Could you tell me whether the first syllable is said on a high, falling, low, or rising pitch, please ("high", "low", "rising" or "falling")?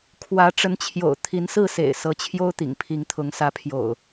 rising